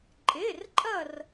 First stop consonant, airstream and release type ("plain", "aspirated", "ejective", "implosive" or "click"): click